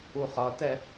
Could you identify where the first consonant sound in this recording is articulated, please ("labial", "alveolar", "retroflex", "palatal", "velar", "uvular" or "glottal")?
uvular